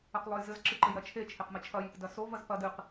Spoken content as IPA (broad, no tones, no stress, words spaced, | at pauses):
ɐqlˠojzɘz ǁɨǃɘjɾɐt͡ʃʰe t͡ʃʰeqmɘt͡ʃʰɐj | dɐso vɐzpɐ dɨq